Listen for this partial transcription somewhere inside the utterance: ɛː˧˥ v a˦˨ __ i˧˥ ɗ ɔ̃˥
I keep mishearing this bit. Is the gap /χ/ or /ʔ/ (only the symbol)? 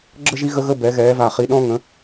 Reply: χ